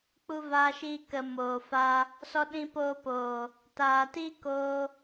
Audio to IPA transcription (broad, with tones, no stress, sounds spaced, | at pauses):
k͡p u˦ v aː˦ ʃ iː˦ k ə˧ m oː˨ f a˧ | s ɔ˧ ɗ ĩ˧ p oː˧ p oː˨ | t aː˨ t iː˦ k oː˧